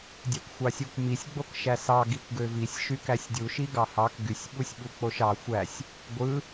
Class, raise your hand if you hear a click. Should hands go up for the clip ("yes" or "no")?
no